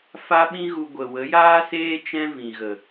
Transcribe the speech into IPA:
f a˦ ɓ ĩ˦ ɣ u˧ ɡʷ ə˨ w ə˨˦ j aː˦ s eː˦ t͡ʃ ɛ̃˦ v ĩ˨ ɣ ə˨

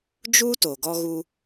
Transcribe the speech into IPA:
d͡ʒ u˦ t o˨ ɡ ɔ˧ ɣ u˧

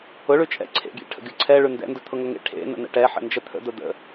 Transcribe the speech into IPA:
ʊ ɭ ʉ t͡ʃʼ ɛ̰ ǀʰ ḛ ɡʲ ḛ ʈʰ ə̰ ɡʲ ʊ ǀʰ ɛ ɭ ʉ n d ɛ̰ n d ʊ t̪ʰ ʊ ŋ ʊ ŋ ḛ ʈʰ ḛ n ə̰ n̪ ə̰ ʈ ɛ ħ ə̰ n d͡ʒ ə t̪ʰ ə̰ d̪ ʊ d̪ ə̰

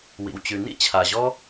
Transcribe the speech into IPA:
w ḭ˩ w t͡ɕ ʉ˩ n ḭ˥ t͡ɕʰ a˩ ʑ ɔ˥

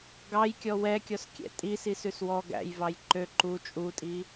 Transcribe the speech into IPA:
ɡ ɑ j kʲ ɔ w ɛ kʲ ɔ s kʲ ɛ̰ tʼ i s i s ʉ s w ɔ ɡ æ̰ j v ɑ j ǃ ø ǃ u t͡ʃʼ u tʼ i

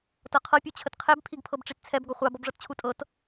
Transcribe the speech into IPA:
t ɤ qʰ ɤ pʲ u t͡ɕʰ ə t qʰ ɛ b pʰ i ɡ pʰ ɤ b ʈ͡ʂ i t t͡sʰ ɛ b ɡ ɔ χʷ a b ɔ b ʐ ɤ t t͡ɕʰ u tʼ ɤ t

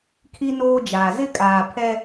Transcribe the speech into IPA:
kʰ i˦ n oː˦ d͡ʒ aː˨ z ɪ˦ kʼ aː˨ pʰ ɛ˦

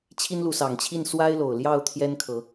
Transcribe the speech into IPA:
t͡ɕʰ i˦ n l u˨˦ s ɑ˨˩ ŋ t͡ɕʰ i˥˨ n s w a˦ ɪ̯ l o˨˩ ʊ̯ l j ɑ˥˨ ʊ̯ t̪ʰ j ɛ˦ n kʰ ɤ˨˦

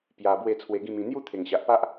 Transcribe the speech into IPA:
p j a˧ b w e˥˧ t͡sʰ w e˧ ɡ ĩ˥˧ m ĩ˧ n̪ j u˥˧ t̪ʰ e˨˩ ŋ ɕ a˨ ʔ p a˦ ʔ

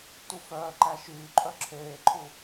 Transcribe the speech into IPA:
t u f œː ǃ æ ʃ yː ǃʼ œ ǁʰ eː ǃʰ u

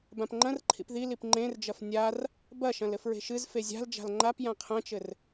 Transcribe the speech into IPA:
b ã p ŋ͡ǃ ɐ̃ r ǃʰ ḭ p ð i l i p ŋ͡ǃ ẽ r d͡ʒ ɐ f nʲ a r | b ɐ ʃ ɐ̃ l ɘ f ɹ e̤ ʃ ɨ z f e zʲ a̤ l d͡ʒ a̤ l ŋ͡ǃ a p j ã qʰ ɐ̃ t͡ʃ ɘ r

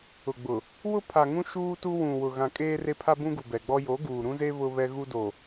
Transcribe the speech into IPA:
ʊ˨ ɡ͡b ʊ˨ | w ʊ˦ pʰ a˨ ŋ ũ˦ ʃ uː˦ t u˦ w ũ˨ w ʊ˨ ɣ ã˨ kʼ eː˦ r e˦ pʰ a˦ b ũ˦ ɡ u˨ b ɛ˨ ɡ͡b ɔ˦ j o˨˦ ɡ uː˨ ɾ ũ˦ z e˦ β ʊ˦ β ɛ˦ ɣ u˦ d o˨

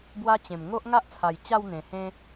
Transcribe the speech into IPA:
b w a˦ t͡ɕ ẽ˨˩ m ŋ o˦ ʔ ŋ a˦ ʔ t͡sʰ a˨˩ j t͡ɕ a˥˧ w n̪ ẽ˨˩ h ẽ˦

